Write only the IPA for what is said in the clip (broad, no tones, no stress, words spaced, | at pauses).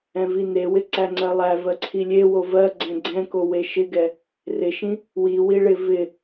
ɛ̃vinewɪ ǀæŋ͡ǀɜlˠæ vɜǀʰilʲe wovɜ ɡ͡ǀɛ̃ɡ͡ǀɛ̃ko weʃɪɡɛ | rɪʃĩ | wi wiɭɪ vɪ